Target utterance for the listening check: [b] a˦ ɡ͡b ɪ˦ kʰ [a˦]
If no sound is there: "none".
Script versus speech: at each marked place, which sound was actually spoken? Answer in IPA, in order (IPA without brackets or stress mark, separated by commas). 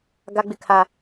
ɡ, a˦